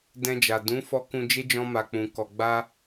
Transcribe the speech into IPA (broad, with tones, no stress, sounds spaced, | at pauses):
d ɛ̃˧ d͡ʒ a˨ d ũ˨˦ f ɔ˧ k ũ˧ d͡ʒ e˦ d͡ʒ ɔ̃˧ m a˨ k͡p ũ˨ k ɔ˨ ɡ͡b a˧